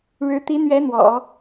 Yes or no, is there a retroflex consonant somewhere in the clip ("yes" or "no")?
yes